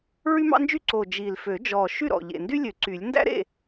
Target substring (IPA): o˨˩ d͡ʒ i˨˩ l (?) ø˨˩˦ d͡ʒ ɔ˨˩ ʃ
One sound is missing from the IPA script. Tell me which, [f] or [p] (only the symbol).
f